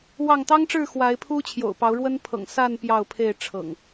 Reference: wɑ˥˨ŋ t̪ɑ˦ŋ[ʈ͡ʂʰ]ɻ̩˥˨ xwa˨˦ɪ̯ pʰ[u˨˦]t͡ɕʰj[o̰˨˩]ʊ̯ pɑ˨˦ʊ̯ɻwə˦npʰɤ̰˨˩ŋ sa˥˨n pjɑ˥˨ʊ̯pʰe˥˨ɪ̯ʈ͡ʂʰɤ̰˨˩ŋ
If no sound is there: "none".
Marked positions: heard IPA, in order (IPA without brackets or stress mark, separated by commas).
ʈ͡ʂ, u˦, o̰˨˩